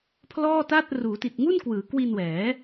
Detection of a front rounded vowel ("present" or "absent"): absent